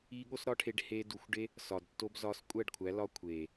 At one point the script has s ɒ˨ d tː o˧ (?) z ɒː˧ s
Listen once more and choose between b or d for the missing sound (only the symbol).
b